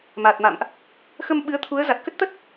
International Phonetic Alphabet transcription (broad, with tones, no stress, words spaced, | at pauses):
ma˨˩t̚ma̰˧˨mʔ | xə˧mɓɨ˨˦ə̯t̪ʰu˨˦ə̯ za˨˩t̚kə˦˥t̚t̪ə˦˥t̚